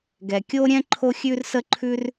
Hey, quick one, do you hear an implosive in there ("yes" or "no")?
no